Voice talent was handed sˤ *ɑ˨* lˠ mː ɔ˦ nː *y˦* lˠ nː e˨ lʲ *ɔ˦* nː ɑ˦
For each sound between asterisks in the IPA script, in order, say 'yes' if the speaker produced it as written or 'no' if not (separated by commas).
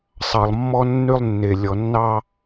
yes, yes, no